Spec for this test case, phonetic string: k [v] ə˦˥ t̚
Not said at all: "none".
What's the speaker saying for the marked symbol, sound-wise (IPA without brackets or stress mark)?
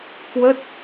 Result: w